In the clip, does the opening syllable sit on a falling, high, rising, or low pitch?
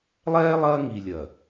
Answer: high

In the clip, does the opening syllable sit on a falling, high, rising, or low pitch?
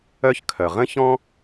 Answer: high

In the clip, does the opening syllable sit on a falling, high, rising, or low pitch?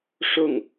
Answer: falling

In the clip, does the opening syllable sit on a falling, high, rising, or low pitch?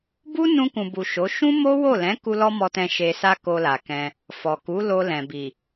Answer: high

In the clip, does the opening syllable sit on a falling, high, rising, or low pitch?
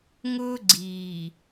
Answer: high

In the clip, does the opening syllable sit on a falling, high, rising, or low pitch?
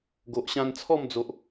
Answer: low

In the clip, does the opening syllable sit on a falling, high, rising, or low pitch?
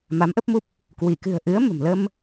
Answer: rising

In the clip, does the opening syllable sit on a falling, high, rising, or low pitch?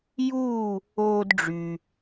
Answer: falling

